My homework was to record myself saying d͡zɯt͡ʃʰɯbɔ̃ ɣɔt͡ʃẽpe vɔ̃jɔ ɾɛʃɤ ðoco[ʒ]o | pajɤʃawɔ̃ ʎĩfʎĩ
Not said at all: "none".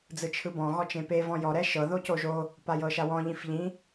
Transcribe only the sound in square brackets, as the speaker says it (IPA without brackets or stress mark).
ʒ